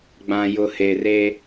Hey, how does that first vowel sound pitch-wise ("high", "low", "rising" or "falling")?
low